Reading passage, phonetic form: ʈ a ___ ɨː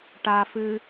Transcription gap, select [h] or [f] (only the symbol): f